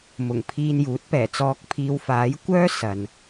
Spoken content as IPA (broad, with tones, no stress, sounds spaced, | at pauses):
m ʊ˨˩ ŋ pʰ iː˧ n j uː˨˥ t̚ p ɛː˨˩ t͡s ɔː˨˥ k̚ pʰ iː˨˧ w f aː˨˥ j kʷ œː˥ s ɐ˨ n